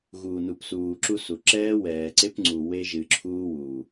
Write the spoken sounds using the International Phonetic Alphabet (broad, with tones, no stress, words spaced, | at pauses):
ɣuː˨nu˨psuː˨ ǁu˦su˨ ǁɛː˦wɛː˨ǀe˦pŋ͡ǀu˨ we˦ʒɨ˨ǁʰuː˦ wuː˨